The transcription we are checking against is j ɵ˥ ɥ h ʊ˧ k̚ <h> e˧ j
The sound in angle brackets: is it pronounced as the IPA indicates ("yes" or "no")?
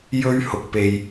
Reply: no